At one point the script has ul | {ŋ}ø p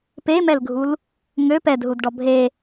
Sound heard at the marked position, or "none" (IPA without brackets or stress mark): ŋ